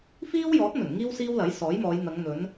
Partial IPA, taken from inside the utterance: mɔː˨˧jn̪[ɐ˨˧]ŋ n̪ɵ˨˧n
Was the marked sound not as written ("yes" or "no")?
no